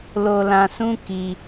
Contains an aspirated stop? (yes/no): no